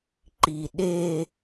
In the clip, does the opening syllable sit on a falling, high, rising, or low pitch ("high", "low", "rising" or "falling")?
low